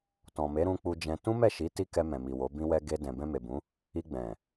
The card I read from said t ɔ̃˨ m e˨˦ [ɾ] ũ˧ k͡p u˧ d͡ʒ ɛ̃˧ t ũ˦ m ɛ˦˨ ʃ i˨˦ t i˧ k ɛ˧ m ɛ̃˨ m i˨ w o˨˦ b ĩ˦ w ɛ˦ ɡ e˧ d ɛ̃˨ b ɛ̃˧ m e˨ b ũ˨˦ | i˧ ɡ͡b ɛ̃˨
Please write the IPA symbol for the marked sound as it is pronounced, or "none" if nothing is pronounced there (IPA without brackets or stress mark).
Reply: ɾ